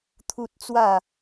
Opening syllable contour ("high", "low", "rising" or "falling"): high